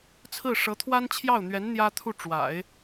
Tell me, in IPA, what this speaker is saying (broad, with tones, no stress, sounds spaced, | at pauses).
t͡sʰ ɹ̩˥˩ ʂ ɤ˧˥ t̪ʰ w a˥ n t͡ɕʰ j ɑ˥˩ ʊ̯ n̪ ɥ ɛ˧˥ n n̪ j ä˥ t̪ʰ u˥˩ ʈ͡ʂ w a̰˨˩˦ ɪ̯